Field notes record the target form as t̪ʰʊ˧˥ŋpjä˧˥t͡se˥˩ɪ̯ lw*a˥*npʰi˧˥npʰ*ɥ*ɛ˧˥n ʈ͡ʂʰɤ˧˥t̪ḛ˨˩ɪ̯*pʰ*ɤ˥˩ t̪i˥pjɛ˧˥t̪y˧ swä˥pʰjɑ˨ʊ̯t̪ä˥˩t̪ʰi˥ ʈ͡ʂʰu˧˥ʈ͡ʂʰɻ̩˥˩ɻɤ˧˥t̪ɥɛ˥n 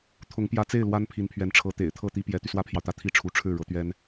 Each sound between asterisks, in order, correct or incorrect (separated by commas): correct, correct, incorrect